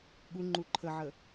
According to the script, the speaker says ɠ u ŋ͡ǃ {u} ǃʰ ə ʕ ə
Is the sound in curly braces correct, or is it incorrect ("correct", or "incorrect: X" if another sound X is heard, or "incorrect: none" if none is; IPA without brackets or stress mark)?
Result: correct